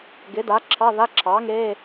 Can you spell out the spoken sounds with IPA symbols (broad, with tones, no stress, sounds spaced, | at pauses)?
ɡ ɪ˩˥ d a˩˥ ǁʰ ɑ˧˥˧ ð a˧˥˧ ǁʰ ɑː˩˥ ŋ e˧˥˧